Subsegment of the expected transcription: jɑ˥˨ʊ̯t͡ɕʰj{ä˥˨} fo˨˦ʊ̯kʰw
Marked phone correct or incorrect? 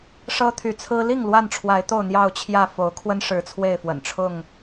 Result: correct